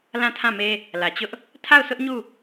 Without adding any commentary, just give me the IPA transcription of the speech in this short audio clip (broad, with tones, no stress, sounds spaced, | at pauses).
l ã˦˨ tʰ ã˦˨ m e˦ | l ä˨ t͡ɕ ʊ˦ ʔ | tʰ a˦˨ ʊ̯ s ʊ˦ ʔ ɲ u˦˨